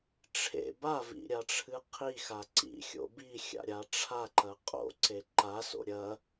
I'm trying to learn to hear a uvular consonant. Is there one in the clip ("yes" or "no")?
yes